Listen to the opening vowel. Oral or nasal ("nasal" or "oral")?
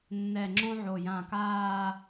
oral